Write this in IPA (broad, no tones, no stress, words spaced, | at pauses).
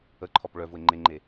əǃʰɔp ɭœ vʊe̯ŋ͡ǃeŋ͡ǃe